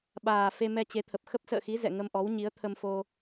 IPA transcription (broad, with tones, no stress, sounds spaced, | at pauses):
ɓ aː˨˩ f e˧ m ɛ˧ t͡ɕ e˨˦ t̪ʰ ə˨˩ p̚ x ə˦˥ p̚ s ə̰ː˧˨ x i˨˦ z ɛ̰˧˨ ŋ ə˧ m ʔ ɔ˨˦ w ɲ i˨˦ ə̯ t̪ʰ ə˧ m f o˧